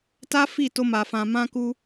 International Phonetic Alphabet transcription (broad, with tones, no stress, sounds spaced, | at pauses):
t a˦ f i˦˨ t o˧ m a˨ f ã˨ m ã˧ k u˧